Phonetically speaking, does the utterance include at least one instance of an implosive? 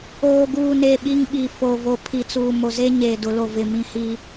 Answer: yes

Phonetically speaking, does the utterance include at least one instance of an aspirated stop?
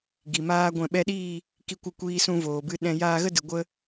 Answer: no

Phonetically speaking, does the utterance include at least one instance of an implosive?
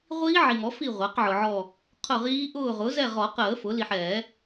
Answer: no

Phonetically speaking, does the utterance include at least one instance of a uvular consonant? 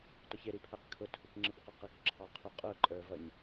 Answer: yes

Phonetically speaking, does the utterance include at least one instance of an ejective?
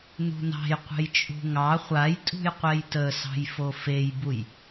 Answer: yes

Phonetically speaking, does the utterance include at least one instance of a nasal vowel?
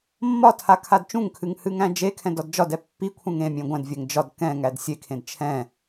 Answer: yes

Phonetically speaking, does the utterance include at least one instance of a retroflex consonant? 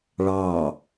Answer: yes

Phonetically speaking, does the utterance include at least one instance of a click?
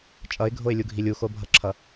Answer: yes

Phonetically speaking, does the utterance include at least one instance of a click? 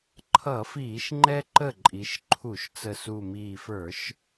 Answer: yes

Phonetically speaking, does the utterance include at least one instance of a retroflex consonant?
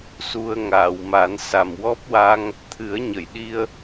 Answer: no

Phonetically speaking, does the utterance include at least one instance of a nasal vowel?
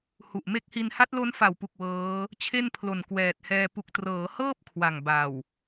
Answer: no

